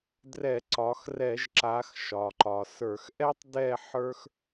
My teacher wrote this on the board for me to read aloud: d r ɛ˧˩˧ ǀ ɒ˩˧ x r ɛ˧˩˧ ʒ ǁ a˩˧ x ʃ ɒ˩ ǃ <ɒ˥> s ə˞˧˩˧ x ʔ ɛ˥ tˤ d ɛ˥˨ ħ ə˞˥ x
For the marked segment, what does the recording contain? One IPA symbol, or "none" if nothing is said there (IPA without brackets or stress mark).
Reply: ɒ˩